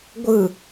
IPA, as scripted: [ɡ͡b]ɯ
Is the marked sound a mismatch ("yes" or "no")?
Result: yes